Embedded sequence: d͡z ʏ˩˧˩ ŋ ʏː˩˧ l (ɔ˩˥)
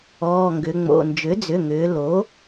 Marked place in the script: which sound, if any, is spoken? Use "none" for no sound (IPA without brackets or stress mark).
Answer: o˩˥